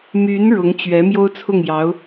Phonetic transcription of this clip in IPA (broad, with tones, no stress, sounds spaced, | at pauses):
m y˧˥ n ɻ ʊ˧˥ ŋ t͡ɕ ɥ ɛ˧˥ m j o˥ ʊ̯ t͡sʰ ʊ˥˩ ŋ j ɑ˧˥ ʊ̯